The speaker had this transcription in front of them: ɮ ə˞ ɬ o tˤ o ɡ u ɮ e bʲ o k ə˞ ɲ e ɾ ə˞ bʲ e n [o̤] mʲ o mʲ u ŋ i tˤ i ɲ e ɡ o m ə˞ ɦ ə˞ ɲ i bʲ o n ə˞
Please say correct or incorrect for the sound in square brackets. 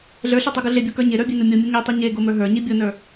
incorrect